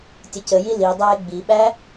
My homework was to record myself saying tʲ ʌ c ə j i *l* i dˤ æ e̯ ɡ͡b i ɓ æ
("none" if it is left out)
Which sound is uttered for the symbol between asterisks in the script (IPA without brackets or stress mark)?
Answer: l